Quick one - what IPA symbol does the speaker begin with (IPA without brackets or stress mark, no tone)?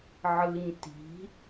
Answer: ʕ